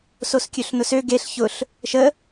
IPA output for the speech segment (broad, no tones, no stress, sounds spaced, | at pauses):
s o s kʲ ø ɬ n ʊ s ø ɡ e ɬ ç ʊ ɬ | ʃ ə